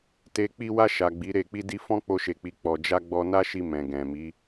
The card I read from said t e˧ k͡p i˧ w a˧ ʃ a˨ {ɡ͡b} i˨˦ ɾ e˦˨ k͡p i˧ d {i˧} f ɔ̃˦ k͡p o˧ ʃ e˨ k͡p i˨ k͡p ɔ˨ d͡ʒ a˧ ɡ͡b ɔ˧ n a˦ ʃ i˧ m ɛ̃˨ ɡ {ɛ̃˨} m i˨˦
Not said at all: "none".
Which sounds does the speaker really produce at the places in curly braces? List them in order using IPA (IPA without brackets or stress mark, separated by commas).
ɡ͡b, i˧, ɛ̃˨